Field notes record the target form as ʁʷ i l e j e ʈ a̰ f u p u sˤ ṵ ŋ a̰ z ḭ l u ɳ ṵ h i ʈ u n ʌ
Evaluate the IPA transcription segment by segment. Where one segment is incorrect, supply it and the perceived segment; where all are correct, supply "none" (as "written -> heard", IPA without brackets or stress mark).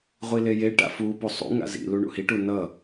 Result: none